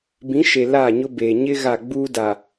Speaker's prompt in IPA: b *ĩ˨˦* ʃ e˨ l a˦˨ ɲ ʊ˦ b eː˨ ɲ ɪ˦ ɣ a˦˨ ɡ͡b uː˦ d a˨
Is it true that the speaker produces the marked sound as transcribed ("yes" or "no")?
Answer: yes